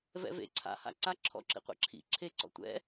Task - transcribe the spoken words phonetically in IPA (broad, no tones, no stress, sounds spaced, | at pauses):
v ɛ̰ v ḛ ǀʰ a̰ h a̰ ǀ a ǁʰ ɔ̰ ǁ ḭ qʷ ḛ ǁʰ ḭ ǁʰ e ǀ ɔ̰ tʷ ɛ̰